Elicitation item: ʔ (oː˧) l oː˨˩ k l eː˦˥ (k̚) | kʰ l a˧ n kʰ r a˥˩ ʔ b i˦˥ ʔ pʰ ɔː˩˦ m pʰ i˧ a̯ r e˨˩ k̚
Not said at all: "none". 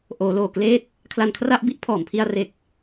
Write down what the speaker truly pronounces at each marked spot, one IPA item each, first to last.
oː˩˦, t̚

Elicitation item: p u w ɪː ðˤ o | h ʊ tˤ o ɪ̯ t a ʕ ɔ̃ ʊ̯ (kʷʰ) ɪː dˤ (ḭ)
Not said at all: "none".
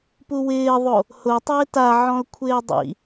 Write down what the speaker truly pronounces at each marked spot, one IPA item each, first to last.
kʷʰ, ḭ

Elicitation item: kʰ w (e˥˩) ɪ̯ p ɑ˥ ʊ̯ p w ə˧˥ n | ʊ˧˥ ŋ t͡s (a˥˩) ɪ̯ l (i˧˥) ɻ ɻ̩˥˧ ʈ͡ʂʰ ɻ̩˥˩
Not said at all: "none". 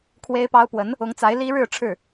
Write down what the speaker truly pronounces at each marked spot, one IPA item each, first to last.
e˥, a˧˥, i˥

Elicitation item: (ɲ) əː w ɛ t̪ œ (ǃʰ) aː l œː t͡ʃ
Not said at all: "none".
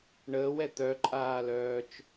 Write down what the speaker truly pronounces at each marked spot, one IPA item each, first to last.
ɳ, ǃʼ

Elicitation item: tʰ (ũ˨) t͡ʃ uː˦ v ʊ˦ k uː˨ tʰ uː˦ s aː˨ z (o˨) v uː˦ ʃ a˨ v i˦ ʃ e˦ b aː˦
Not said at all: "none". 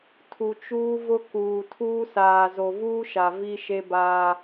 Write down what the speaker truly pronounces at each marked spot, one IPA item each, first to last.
u˨, o˨

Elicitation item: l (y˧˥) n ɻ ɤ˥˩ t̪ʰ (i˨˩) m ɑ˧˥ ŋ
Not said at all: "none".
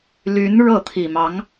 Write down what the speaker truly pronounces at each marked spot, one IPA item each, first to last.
y˧˥, i˨˩

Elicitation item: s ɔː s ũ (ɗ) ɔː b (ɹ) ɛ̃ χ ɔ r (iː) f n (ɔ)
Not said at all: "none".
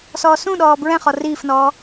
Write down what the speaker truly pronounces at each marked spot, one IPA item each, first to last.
ɗ, ɹ, iː, ɔː

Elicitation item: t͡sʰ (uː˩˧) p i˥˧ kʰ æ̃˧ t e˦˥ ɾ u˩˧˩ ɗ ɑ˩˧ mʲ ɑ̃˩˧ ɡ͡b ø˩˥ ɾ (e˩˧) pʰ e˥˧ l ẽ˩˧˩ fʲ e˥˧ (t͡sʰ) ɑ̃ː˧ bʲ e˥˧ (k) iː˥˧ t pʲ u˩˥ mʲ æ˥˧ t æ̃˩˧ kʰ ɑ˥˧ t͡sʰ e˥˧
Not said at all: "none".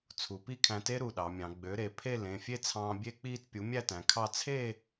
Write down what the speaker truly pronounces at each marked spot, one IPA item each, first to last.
u˩˧, e˩˧, t͡sʰ, k͡p

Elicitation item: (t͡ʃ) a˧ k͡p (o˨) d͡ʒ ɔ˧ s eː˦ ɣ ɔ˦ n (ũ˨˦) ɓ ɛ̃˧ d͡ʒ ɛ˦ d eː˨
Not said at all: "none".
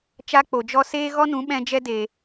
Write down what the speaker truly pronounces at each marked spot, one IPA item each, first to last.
t͡ʃ, o˨, ũ˨˦

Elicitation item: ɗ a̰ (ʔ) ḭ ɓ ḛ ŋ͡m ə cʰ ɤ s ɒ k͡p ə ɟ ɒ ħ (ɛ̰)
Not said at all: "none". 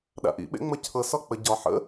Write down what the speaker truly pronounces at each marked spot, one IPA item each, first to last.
ʔ, ə̰

